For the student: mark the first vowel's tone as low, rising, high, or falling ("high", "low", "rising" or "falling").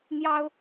high